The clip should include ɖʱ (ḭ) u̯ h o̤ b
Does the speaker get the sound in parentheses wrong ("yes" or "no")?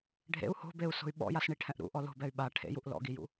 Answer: yes